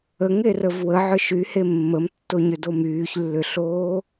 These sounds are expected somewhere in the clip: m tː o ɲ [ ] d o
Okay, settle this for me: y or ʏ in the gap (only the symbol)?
ʏ